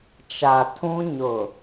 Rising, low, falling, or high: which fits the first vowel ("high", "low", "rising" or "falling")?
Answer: low